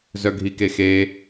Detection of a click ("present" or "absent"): absent